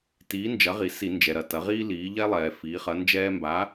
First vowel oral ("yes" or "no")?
yes